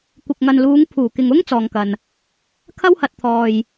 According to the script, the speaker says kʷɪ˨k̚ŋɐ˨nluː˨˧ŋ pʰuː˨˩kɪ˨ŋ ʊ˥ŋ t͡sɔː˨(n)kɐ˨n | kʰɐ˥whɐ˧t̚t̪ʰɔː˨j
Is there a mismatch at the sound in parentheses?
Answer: yes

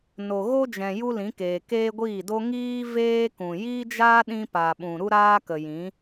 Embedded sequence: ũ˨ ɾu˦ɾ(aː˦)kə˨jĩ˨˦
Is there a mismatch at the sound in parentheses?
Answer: no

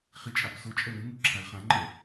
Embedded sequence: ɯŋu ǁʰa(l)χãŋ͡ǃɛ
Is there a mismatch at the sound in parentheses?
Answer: no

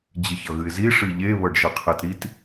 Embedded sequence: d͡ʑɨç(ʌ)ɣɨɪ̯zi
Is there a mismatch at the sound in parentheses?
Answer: no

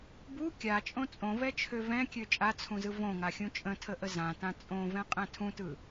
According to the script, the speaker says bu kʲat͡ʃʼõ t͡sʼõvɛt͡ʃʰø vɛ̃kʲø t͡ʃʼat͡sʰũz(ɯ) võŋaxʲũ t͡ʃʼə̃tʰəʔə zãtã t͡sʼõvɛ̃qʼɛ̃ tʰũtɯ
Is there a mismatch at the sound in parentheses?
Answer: no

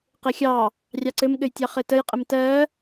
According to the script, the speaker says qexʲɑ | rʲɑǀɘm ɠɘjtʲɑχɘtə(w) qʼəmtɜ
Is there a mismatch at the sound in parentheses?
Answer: yes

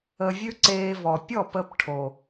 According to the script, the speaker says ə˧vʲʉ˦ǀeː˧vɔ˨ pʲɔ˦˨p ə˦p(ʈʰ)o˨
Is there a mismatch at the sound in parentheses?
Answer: no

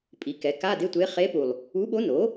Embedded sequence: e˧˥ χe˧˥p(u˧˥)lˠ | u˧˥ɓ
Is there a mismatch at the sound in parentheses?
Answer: yes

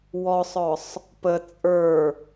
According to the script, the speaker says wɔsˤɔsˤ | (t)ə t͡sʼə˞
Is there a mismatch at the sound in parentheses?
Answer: yes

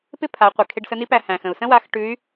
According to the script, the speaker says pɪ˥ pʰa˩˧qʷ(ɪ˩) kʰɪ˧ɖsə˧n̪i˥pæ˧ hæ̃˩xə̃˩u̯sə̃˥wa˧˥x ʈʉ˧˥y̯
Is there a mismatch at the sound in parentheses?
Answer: no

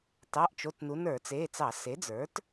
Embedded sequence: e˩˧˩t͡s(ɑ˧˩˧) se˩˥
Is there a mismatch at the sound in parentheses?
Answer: no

